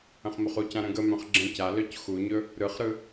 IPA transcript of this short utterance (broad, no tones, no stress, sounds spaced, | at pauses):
ə̃ χ m ɵ χ u c ã ɾ ə̃ ɡ ə m œ̃ χ ɡ͡ǁ ə̃ c a l œ c x u ɲ ɵ | ɾ ɯ χ ɾ ɯ